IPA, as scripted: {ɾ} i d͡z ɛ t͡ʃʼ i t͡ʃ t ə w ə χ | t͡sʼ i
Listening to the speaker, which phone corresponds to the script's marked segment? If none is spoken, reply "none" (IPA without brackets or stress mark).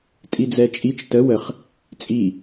tʼ